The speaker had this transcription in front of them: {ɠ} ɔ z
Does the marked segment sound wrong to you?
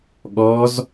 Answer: no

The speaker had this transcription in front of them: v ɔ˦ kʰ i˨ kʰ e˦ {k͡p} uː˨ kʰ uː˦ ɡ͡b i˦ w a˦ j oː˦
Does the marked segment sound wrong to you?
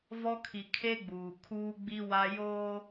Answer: yes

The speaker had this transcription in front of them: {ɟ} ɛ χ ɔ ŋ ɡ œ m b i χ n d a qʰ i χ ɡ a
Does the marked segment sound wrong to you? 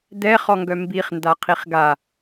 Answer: yes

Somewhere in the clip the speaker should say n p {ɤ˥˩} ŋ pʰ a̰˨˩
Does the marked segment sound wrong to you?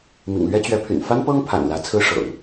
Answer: yes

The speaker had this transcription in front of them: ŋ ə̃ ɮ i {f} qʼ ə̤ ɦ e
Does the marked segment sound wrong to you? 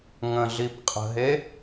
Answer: yes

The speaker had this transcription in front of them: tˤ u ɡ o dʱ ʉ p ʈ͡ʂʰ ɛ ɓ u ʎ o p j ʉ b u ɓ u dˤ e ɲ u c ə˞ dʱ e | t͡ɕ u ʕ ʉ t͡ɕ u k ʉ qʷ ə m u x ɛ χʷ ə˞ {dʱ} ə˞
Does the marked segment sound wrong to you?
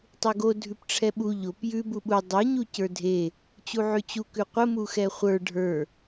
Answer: yes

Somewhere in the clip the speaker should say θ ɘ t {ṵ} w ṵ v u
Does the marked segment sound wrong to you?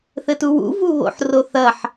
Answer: yes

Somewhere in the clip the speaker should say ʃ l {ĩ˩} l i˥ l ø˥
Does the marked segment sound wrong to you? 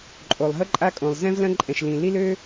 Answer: no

